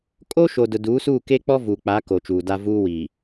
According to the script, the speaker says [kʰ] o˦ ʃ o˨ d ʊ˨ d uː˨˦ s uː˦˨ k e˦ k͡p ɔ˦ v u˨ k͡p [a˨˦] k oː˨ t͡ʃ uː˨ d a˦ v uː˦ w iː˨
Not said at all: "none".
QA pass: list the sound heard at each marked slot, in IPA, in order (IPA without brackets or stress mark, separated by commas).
kʼ, a˨˦